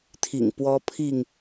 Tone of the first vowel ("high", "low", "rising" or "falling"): low